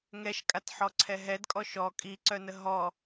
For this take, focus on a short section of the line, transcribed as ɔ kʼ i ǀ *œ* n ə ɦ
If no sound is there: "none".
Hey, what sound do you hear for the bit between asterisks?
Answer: œ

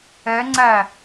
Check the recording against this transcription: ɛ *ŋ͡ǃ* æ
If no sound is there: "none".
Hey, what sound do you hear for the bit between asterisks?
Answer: ŋ͡ǀ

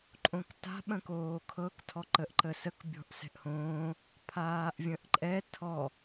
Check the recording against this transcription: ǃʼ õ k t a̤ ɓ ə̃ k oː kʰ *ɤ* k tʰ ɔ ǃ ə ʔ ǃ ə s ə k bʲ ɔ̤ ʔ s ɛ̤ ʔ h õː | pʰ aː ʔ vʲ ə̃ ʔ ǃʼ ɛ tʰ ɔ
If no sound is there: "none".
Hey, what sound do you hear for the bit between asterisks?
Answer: ɤ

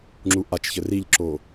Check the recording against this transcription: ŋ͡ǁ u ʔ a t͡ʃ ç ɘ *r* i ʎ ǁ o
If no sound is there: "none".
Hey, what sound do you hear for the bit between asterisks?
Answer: r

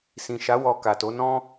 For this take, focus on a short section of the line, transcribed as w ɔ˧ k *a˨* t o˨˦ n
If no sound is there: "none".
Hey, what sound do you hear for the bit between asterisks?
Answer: a˨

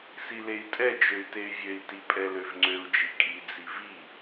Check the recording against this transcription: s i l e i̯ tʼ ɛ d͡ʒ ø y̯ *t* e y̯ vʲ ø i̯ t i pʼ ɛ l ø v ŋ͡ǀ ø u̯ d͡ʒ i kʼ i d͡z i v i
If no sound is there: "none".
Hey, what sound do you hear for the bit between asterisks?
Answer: t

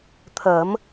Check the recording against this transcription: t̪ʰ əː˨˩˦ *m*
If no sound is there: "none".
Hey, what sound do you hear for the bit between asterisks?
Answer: m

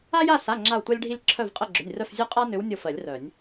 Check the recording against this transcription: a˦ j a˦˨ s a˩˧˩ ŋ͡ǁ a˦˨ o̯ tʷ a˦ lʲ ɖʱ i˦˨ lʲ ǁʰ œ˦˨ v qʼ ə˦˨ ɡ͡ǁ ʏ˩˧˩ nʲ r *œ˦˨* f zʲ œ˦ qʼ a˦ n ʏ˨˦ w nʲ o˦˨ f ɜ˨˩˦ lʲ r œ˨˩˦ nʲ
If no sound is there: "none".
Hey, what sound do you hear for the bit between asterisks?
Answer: œ˦˨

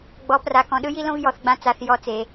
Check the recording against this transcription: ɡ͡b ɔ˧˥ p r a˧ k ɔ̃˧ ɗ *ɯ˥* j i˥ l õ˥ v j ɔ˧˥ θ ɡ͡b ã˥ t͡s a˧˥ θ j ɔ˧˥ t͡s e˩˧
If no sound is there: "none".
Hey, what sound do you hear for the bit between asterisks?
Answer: ɯ˥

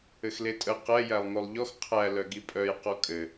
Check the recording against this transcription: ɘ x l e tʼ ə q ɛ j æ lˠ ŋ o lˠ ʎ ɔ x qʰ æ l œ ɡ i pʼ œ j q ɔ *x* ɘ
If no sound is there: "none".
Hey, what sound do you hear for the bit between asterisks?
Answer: kʼ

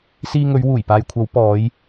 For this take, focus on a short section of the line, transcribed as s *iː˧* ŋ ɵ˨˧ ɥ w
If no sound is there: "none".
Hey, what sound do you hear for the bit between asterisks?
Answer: iː˧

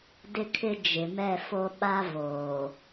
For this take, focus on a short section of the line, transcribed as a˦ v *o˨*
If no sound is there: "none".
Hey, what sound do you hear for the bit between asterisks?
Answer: oː˨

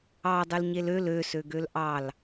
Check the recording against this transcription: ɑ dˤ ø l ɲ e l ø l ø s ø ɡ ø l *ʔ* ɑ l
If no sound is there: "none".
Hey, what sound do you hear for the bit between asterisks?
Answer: ʔ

